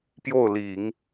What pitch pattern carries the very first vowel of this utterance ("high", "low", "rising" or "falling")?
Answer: falling